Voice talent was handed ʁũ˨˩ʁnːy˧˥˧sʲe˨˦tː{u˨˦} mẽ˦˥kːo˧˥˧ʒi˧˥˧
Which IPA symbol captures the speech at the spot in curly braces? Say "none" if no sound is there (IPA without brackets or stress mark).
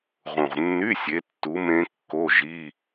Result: u˨˦